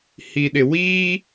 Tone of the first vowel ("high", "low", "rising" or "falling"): low